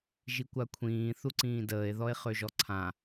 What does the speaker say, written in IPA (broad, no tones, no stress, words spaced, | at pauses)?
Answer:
ʒikʷakʷʰĩː θuǀĩːdəːe̯ðɔe̯ χøʒɔǀʰã